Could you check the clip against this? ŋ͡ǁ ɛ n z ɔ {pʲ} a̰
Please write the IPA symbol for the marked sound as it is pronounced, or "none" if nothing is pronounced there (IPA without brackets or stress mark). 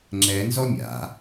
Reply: mʲ